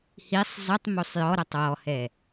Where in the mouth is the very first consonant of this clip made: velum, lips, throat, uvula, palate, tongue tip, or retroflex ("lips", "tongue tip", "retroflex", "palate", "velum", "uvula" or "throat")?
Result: throat